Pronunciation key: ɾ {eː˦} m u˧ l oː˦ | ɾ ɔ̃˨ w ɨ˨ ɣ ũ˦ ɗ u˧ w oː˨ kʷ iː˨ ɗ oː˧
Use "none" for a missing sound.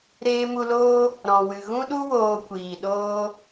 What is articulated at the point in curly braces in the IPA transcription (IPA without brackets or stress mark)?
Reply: eː˧